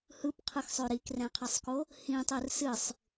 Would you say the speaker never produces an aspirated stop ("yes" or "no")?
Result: no